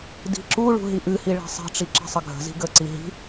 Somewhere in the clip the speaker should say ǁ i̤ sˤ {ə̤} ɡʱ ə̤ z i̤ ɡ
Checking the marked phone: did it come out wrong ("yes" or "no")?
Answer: yes